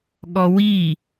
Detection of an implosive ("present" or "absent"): present